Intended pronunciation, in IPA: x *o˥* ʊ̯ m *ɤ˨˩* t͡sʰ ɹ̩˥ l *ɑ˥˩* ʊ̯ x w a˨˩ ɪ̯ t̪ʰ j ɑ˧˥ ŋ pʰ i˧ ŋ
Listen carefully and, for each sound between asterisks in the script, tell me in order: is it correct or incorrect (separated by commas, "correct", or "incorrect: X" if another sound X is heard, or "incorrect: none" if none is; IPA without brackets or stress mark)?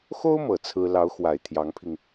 correct, correct, incorrect: ɑ˧˥